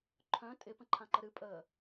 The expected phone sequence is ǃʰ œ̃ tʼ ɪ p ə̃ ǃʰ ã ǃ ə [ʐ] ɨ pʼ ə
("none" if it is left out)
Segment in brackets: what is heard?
ɾ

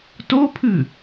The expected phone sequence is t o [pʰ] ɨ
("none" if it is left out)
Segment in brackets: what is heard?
pʰ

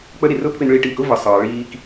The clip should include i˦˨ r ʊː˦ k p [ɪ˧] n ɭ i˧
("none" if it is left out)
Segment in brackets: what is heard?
ɪ˧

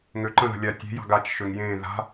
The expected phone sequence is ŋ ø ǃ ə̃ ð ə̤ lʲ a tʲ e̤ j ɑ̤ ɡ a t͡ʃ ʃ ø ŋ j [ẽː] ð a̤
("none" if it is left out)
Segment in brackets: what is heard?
ẽː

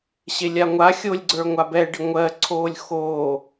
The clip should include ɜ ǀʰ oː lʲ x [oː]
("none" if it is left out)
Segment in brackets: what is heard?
oː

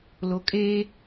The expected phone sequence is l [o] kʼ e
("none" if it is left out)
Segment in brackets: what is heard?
o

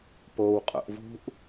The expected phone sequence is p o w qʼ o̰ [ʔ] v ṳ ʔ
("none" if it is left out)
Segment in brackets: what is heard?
ʔ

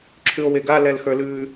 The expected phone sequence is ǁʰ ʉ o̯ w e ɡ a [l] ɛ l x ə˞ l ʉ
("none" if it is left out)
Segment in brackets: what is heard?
l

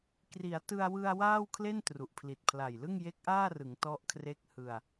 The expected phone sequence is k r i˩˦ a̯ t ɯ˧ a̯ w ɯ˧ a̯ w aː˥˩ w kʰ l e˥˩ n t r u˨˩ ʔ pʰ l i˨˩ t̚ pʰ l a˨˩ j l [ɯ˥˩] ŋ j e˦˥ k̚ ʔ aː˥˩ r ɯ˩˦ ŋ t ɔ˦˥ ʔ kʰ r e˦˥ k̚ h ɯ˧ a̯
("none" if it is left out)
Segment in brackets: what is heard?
ɯ˥˩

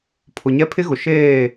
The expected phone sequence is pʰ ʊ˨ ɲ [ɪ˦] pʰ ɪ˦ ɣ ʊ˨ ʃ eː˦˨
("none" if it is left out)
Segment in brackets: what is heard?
ɛ˦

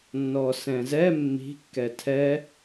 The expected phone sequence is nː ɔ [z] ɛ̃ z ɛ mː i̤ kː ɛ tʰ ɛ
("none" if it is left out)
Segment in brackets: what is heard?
s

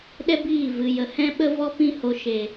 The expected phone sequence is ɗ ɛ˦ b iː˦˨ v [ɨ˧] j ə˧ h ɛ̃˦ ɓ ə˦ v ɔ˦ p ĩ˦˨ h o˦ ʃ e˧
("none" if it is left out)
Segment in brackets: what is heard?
ɨ˧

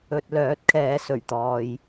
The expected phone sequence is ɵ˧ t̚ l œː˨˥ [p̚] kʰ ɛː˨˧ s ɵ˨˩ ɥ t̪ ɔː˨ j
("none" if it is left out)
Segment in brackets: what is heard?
t̚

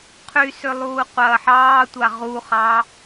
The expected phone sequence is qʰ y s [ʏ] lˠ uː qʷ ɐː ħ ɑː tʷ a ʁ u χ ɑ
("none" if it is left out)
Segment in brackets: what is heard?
ʏ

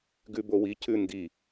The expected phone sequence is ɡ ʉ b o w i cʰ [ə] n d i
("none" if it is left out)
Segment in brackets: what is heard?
ʉ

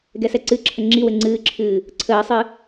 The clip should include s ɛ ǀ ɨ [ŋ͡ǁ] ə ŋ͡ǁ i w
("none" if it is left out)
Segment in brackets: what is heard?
ǁʰ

